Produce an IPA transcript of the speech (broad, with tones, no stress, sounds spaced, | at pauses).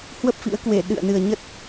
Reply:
h w ə˦˥ p̚ f ḭ˧˥ ə̯ k w e˧˩ ɗ ɨ̰˧˨ ə̯ n ɨ˨˩ ə̯ ɲ ə˦˥ t̚